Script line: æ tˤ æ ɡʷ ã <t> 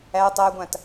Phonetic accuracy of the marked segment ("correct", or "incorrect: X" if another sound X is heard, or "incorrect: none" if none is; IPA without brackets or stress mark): correct